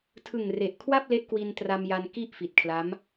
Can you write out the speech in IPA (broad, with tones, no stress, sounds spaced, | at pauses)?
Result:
tʰ ɯ˨˩ ŋ r e˨˩ ʔ kʰ w a˥˩ p̚ l e˦˥ ʔ k w i˧ n t r a˧ m j a˧ n k i˥˩ ʔ f i˨˩ t̚ kʰ l a˦˥ m